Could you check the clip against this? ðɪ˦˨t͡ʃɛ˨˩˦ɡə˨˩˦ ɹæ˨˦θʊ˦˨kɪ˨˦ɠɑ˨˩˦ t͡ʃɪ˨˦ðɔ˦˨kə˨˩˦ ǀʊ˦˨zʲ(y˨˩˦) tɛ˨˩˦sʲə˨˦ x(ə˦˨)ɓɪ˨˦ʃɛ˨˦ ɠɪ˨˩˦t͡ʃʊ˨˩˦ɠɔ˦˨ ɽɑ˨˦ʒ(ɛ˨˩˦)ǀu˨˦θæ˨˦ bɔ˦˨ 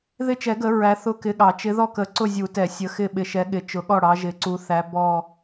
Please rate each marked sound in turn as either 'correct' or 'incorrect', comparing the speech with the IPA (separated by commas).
incorrect, incorrect, incorrect